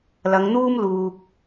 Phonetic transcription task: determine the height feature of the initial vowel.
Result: low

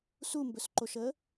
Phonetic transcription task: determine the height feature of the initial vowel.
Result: high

